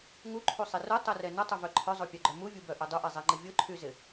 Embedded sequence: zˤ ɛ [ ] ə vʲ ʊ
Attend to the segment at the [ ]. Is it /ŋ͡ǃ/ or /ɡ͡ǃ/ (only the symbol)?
ŋ͡ǃ